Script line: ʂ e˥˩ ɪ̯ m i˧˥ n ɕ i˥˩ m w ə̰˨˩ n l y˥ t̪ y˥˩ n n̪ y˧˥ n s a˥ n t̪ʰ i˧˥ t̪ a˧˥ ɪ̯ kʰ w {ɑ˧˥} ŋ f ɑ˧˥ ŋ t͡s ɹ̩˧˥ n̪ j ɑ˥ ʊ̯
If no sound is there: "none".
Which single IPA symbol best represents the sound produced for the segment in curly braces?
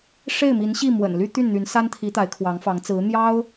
ɑ˧˥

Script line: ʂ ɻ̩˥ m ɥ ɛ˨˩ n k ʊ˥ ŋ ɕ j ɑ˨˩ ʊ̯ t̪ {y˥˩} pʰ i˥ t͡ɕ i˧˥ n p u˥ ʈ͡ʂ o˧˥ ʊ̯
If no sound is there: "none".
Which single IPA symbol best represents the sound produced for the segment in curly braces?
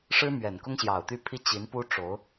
y˥˩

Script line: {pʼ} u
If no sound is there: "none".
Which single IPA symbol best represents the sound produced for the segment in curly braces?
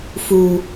f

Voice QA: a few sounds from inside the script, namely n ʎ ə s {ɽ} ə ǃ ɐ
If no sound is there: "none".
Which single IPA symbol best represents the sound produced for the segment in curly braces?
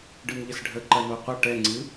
ɖʱ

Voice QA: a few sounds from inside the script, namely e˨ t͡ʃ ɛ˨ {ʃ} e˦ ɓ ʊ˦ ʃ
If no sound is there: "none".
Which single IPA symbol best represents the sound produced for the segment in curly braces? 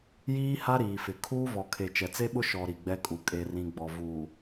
t͡s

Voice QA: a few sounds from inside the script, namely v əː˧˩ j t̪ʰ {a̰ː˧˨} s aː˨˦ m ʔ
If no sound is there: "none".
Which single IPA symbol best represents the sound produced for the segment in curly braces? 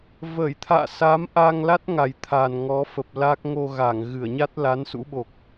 a̰ː˧˨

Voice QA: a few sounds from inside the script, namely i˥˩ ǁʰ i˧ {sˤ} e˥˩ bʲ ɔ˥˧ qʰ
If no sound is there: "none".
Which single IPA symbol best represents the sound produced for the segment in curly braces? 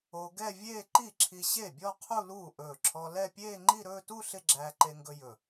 ɕ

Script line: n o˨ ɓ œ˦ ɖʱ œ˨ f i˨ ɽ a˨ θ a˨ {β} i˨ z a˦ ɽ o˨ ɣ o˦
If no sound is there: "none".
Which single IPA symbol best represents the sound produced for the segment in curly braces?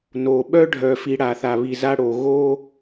β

